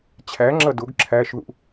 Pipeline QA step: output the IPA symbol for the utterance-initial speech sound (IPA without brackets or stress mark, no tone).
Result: t͡ɕʰ